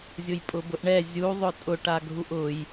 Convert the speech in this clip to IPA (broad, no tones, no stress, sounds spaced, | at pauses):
zʲ ʊ j pʼ ʊ b ʊ ʔ ɳ ɛ zʲ u ðˤ ʊ tʼ ʊ ʈ a ɡʱ u ʔ ʊ j